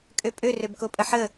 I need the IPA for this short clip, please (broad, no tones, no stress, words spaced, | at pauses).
kʼøpʼø røbkopʼəħə